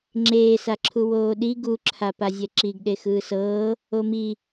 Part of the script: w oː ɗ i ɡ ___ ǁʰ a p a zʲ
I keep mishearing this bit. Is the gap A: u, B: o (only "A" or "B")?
A